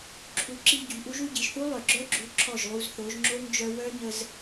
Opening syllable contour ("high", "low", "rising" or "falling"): rising